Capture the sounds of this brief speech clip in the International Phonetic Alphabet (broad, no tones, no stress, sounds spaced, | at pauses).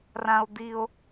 r ã o̯ d̪ i o̯